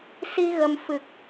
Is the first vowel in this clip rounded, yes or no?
no